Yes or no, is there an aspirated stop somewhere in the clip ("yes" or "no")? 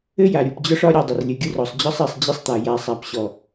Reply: no